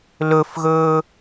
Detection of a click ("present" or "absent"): absent